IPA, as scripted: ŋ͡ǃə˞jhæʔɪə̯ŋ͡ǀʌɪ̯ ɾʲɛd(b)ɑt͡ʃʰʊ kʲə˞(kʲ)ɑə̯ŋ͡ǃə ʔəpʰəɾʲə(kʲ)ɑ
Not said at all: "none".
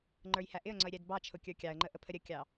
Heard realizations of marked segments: b, kʲ, kʲ

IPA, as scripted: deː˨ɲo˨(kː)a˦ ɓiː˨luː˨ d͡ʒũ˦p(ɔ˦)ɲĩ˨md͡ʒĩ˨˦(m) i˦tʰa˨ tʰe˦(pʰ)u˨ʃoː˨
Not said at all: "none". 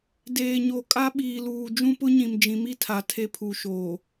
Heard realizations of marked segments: kʼ, ʊ˦, m, pʰ

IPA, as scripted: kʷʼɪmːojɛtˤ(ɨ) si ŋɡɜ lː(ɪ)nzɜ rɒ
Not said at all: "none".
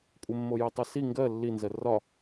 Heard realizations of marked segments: ɛ, i

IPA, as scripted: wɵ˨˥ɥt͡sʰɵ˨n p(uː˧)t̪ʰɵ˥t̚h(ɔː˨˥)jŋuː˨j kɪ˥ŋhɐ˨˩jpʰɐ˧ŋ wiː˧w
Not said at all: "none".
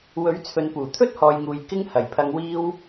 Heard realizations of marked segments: uː˨˩, ɔː˨

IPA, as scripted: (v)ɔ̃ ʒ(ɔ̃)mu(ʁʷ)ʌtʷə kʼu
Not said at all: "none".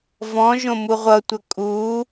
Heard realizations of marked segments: v, õ, ʁʷ

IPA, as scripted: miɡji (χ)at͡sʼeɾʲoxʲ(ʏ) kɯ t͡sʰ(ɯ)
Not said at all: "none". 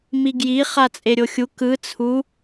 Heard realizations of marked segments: χ, u, u

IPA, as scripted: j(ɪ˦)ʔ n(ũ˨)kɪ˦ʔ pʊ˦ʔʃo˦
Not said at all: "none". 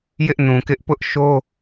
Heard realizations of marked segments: ɪ˦, ũ˨

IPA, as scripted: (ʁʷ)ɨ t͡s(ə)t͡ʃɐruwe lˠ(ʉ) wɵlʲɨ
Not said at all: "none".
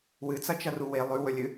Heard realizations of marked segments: w, ɐ, ʉ

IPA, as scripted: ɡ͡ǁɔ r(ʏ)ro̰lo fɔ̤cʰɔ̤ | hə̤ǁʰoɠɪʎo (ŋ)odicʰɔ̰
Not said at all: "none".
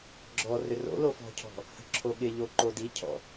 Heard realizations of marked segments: ʏ, ǃ

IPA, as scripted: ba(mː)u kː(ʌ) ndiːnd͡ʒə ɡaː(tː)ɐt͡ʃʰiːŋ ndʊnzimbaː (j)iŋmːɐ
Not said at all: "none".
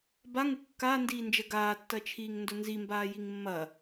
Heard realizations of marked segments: ŋ, a, tː, j

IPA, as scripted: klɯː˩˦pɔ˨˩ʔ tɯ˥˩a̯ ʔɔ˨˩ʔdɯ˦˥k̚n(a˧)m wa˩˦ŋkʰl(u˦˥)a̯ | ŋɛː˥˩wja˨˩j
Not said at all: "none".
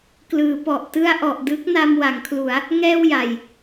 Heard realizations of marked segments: a˧, u˩˦

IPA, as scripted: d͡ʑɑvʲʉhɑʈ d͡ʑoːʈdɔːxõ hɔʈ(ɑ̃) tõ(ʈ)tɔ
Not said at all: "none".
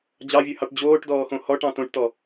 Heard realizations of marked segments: ɑ̃, ʈ

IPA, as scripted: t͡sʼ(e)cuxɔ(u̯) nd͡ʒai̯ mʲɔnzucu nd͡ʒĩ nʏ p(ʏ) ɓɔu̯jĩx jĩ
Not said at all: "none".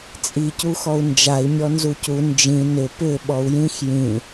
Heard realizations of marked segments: i, u̯, ʏ

